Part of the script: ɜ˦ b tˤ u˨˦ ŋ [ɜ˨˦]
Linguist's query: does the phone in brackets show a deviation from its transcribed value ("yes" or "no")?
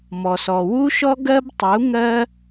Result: yes